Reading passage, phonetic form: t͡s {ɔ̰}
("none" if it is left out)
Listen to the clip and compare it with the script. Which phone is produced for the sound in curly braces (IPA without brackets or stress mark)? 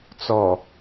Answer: ɔ